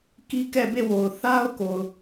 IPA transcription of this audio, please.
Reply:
k i˦ k ɛ˦˨ b e˦˨ w o˨ ʊ̯ θ a˦ ʊ̯ k o˨ ʊ̯

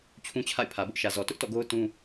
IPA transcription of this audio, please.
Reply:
t͡ɕʰ ũ˦ t͡ɕʰ a̰˦˨ ɪ̯ pʰ ä˨ b ʊ˦ ʔ ʃ ä˨ z ɔ˨ t ʊ˦ ʔ t ɔ̰˦˨ ɡ o˦ ʊ̯ t ũ˦

